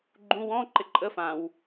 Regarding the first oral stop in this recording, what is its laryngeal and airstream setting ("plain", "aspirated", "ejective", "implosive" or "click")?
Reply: click